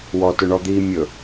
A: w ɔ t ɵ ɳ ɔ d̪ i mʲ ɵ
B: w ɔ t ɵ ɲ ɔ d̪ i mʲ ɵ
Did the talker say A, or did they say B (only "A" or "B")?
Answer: A